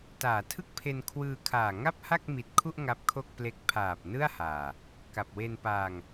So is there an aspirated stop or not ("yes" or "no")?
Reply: yes